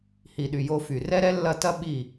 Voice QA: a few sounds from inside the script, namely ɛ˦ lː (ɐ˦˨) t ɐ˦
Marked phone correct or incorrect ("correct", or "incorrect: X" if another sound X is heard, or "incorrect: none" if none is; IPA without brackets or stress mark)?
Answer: correct